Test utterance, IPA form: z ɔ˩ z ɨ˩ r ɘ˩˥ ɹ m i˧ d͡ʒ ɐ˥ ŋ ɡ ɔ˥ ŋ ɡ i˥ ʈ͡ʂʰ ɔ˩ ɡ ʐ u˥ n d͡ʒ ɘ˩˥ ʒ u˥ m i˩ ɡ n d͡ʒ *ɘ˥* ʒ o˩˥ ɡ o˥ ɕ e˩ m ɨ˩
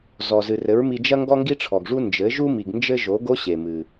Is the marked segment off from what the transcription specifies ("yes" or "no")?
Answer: no